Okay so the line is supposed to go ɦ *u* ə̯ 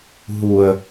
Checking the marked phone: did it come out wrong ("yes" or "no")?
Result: no